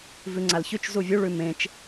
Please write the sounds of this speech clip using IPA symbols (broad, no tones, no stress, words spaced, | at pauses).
vʉŋ͡ǀalçʉt͡ʃ zuvʲu ɭʉmẽt͡ʃ